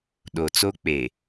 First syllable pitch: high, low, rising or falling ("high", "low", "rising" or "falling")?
low